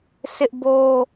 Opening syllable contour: high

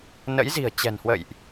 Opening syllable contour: rising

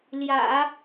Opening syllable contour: low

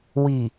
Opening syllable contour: low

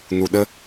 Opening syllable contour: low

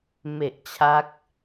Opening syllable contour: low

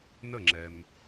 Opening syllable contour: falling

